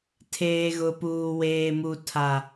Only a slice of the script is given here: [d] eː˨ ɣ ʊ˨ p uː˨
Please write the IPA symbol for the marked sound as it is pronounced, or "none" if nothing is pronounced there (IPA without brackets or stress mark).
tʰ